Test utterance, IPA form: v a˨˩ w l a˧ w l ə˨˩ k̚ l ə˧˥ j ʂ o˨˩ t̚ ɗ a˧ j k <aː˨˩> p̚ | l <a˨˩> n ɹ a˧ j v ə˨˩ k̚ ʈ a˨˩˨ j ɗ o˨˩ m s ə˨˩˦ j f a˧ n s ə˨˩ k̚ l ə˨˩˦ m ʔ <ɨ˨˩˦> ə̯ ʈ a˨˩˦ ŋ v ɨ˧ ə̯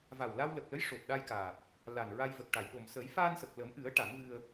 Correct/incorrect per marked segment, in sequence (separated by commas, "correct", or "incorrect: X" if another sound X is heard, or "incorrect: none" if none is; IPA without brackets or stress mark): correct, correct, correct